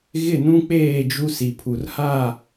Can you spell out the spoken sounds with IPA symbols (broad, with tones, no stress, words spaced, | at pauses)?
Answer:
ɣɪ˦˨nũ˦k͡peː˦˨d͡ʒu˦ si˨pʰu˨rha˦˨